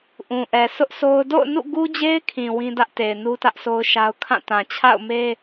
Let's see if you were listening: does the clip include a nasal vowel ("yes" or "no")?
yes